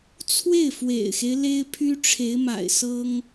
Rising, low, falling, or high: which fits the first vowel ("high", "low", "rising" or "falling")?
falling